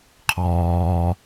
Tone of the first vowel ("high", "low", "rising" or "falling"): low